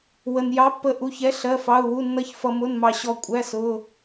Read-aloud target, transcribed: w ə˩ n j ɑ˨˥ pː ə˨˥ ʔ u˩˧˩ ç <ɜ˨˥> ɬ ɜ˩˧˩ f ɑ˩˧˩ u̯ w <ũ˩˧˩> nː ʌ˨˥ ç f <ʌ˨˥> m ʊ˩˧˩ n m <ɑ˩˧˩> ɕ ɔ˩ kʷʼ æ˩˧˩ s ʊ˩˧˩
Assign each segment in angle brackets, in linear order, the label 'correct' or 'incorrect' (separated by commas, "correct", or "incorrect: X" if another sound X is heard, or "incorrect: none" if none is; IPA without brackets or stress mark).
incorrect: ɛ˨˥, incorrect: u˩˧˩, incorrect: ʌ˩, incorrect: ɑ˩